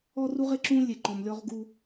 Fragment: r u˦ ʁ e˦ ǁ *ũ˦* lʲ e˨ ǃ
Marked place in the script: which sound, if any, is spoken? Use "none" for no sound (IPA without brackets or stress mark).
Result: ũ˦